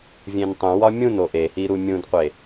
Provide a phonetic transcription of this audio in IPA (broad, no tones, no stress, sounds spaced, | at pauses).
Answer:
vʲ ẽ n tˤ ũ w ɒ mʲ ũ n o ʔ e h i ɾ u mʲ ũ d qʷ e